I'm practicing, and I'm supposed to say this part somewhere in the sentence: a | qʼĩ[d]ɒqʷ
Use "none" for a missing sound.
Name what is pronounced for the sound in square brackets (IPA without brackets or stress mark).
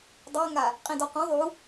d